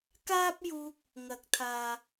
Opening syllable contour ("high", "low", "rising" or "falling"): high